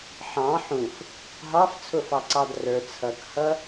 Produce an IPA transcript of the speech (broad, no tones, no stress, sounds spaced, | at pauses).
ħ ɑ̃ ħ ũ f | ɦ ɑ f t͡sʰ ʊ f ɑ ǀ ɑ d r ə˞ t͡sʰ ʌ k h ʌ